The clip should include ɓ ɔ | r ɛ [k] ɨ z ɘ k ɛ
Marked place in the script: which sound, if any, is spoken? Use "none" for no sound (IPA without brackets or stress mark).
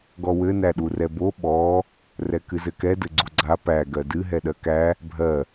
k